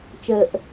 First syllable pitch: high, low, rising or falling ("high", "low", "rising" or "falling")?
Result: low